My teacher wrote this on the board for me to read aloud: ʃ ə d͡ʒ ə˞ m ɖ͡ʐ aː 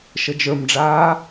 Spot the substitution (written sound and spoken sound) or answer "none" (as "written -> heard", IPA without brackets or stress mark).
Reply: none